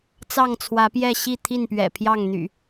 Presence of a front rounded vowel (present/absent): present